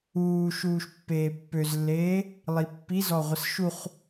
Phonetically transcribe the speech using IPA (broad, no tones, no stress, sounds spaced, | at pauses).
uː ʃ uː ʃ pː eː pː ø z lː eː | lˠ i pː i z ɔ ʁʷ ə s ʃ u χ